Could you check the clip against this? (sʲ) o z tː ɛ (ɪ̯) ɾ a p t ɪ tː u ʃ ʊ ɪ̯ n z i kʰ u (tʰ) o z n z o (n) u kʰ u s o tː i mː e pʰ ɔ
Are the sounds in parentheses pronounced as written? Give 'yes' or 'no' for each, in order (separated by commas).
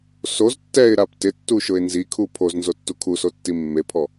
no, yes, no, no